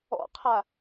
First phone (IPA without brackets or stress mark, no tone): ɔ̰